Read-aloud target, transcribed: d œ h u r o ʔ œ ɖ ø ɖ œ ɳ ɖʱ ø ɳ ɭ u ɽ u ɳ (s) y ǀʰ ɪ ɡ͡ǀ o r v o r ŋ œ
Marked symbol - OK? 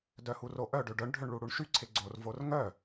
no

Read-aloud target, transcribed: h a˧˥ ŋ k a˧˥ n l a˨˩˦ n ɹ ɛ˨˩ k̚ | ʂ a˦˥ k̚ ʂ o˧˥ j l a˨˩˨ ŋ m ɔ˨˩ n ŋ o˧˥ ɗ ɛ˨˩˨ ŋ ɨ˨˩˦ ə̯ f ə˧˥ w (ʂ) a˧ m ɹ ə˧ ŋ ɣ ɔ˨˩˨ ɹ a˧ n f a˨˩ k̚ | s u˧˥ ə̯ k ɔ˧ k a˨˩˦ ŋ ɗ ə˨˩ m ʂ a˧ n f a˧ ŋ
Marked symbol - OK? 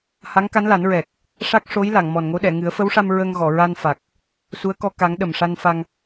yes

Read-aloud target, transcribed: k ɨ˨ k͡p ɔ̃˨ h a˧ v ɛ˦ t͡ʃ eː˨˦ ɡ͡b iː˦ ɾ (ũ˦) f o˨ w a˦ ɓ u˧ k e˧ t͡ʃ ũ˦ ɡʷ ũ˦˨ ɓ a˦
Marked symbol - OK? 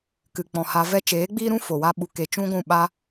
yes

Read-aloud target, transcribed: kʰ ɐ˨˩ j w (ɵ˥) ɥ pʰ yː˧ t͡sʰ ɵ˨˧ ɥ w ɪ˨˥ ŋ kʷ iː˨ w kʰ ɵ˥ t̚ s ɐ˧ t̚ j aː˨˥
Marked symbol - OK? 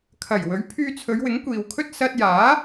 no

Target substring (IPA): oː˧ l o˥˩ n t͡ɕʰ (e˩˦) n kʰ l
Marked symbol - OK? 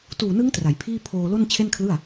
no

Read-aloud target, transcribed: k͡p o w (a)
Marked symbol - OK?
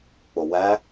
no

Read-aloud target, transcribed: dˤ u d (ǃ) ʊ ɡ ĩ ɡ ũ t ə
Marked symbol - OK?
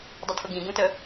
no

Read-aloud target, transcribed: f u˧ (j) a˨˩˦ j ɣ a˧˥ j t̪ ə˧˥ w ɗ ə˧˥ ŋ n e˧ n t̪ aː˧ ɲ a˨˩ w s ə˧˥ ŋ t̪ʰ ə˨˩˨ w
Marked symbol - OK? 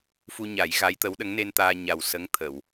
no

